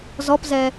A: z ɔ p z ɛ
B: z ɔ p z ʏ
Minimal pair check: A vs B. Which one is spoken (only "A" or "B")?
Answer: A